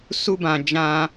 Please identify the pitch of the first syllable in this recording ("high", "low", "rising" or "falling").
high